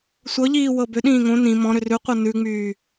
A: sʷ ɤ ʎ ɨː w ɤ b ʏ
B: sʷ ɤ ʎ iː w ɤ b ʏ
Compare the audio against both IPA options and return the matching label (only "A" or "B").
B